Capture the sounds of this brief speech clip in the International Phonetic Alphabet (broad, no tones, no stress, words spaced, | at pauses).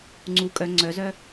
ŋ͡ǀu kʼœ ŋ͡ǀœzœ